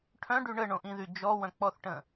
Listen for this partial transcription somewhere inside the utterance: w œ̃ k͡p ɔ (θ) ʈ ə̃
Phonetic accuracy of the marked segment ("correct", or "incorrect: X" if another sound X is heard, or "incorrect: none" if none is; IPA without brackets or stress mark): correct